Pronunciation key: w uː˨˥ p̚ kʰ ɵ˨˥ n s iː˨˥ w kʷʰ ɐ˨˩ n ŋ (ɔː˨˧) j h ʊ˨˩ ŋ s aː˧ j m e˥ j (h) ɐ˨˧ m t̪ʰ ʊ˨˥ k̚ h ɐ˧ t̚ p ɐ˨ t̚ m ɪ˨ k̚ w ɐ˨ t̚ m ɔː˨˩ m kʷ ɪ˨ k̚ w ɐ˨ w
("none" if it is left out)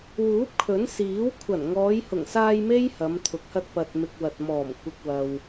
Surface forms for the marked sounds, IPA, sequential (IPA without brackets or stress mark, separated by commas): ɔː˨˧, h